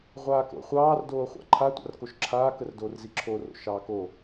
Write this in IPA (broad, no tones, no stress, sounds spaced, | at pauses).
ʁʷ aː k o̰ χʷ ɑː r d oː χʷ a̰ ǃʰ a tʷ a̰ r k o ʃ ǁʰ aː k ə r d oː r z i ǁʰ o r o̰ ʃ ɑː k o